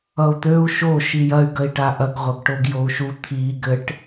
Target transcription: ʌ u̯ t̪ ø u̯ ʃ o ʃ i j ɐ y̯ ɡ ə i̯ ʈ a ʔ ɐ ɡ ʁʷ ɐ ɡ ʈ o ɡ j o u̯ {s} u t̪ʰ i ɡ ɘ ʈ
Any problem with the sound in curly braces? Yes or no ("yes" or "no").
yes